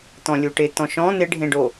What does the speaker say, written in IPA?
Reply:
t̪ ɔ̃ lʲ u ʈ ɪ t̪ ɔ̃ ʃ ɔ̃ n̪ ɪ ɖʱ ẽ ɖ o

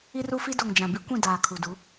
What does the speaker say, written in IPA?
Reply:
i˦ r u˦ f i˦ d o˨ ŋ d͡ʒ ã˨ b i˦ kʷ ĩ˦˨ d aː˨ kʰ u˨ d u˨˦

